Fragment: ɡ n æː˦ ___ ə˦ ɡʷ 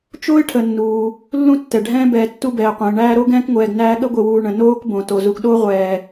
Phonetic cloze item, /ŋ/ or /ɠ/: ɠ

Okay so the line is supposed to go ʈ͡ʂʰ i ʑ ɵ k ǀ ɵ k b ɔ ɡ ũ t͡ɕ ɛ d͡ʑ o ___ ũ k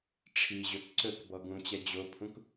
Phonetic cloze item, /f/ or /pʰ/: pʰ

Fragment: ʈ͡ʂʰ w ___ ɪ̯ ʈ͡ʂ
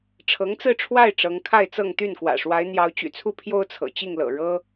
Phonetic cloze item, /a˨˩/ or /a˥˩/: a˥˩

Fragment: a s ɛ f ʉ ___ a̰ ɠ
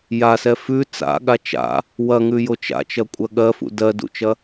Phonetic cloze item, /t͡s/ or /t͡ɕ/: t͡s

